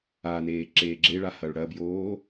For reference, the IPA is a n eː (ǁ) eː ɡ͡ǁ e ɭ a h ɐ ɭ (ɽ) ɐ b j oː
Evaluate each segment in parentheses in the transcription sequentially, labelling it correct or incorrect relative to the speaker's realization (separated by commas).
correct, correct